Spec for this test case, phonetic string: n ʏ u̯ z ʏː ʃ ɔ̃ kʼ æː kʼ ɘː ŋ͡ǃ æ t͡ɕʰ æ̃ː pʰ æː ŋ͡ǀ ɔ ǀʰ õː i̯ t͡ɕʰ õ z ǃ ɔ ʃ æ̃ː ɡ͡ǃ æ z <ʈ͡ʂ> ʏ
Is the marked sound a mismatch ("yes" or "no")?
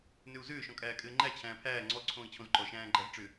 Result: no